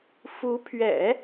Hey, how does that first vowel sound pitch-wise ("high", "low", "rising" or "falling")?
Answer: rising